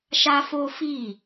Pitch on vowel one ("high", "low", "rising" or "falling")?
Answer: high